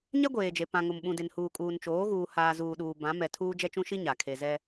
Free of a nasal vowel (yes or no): no